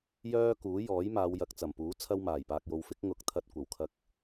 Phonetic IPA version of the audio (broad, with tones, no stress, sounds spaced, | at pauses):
j œː˥ k uː˨˥ j ɔː˨˥ j m aː˨˧ w j ɐ˨ k̚ t͡s ɐ˨˩ m p uː˨˥ t͡sʰ ɐ˥ w m aː˨˩ j p aː˧ k̚ j o˧ w f ɪ˥ k̚ ŋ ʊ˧ k̚ t̪ʰ ɐ˧ t̚ kʷ ɐ˨˩ w kʰ ɐ˧ k̚